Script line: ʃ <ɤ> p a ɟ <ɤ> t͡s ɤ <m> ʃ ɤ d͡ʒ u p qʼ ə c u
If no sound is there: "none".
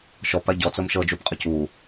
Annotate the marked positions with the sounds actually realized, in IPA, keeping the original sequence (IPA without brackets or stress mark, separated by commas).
ɔ, ɔ, m